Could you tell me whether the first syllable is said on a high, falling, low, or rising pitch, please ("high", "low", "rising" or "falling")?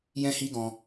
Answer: high